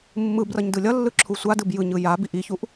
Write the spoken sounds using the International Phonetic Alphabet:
mːɯbrʌɲ dɯlʲʌlːɯ ǁʰusʷadɯb jɯɲɯ ja biʔiçuʔ

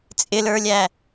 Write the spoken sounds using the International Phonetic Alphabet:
t͡sʼɪlə˞lʲæ

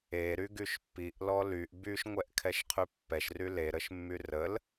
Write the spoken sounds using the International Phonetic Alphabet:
e ɾyɡyʃpːiʔ lɔlyʔ byʃ ŋʷɛʔkʰɛʃqʰypːɛʃ ryle ɾəʃmːyrəl

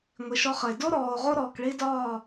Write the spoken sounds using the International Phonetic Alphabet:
ŋʷi˨ʃɔ˧χə˨e̯ do˦ɾɔː˨o̯ ʁo˦ɾɔː˨kɭi˦ dɒː˦˨

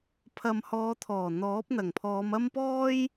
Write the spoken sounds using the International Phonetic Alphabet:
pʰɐ˨mhɔː˨˧t̪ʰɔː˨˩ n̪ɔː˨˥p̚n̪ɐ˨˩ŋpʰɔː˨˧mɐ˥m pɔː˥j

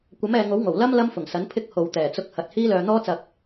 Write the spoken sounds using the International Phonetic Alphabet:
kʷɐ˨˥mɛː˨ŋo˨˥w ŋo˨˩w lɐ˥m lɐ˥mfʊ˨˩ŋsɐ˨˥n pʰɪ˧k̚ ho˨wt̪ɛː˨˩t͡sʊ˧k̚ hɐ˨t̚ hiː˥lœː˧ n̪ɔː˥t͡sɐ˧k̚

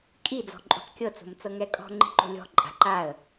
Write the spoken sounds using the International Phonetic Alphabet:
kʼi d͡zɔ̤ǃʼo̤qkʲɤ t͡so̤mt͡sɤŋɛkʼɔ̤ ŋ͡ǃi̤ǃo̤lʲɔ̤ ǃʼa̤ ǃaə̯

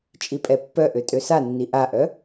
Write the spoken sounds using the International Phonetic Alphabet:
t͡ʃʼipʼɛpːœʔø tʼøsanːi ʔaʔœ

